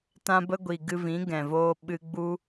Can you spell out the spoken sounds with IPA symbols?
t ã˧ b ə˧ ɡʷ i˨ ɡ ɨ˧ v ĩ˨˦ ɡ ɛ̃˨ v oː˧ ɓ ɨ˧ ɡ͡b u˦

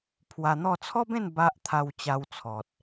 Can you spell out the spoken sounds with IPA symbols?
pʰ w a˧ n̪ ɔ˥˧ t͡sʰ ɔ˦ b ẽ˥˧ n b a˦ ʔ t̪ʰ a˧ w t͡ɕ a˧ w t͡sʰ ɔ˨ t̚

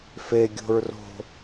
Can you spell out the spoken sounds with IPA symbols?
f e ɡʲ o̤ ɹ r o̤

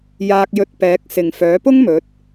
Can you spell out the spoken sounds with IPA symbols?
j aː˧ k̚ j ɵ˧ t̚ p ɛː˨˥ k̚ s ɪ˨ ŋ f œː˨˥ p ʊ˥ ŋ m ɵ˨˥ t̚

